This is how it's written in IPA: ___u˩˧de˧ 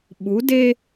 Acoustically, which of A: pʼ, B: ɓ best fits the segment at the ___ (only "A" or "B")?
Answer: B